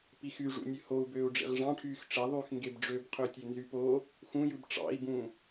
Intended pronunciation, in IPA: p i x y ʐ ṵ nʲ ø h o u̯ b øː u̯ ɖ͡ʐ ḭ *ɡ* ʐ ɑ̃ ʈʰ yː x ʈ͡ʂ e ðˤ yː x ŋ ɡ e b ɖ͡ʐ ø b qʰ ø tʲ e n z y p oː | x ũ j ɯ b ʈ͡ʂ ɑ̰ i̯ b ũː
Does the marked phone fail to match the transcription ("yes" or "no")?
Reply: yes